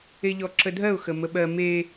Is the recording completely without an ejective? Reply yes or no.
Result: yes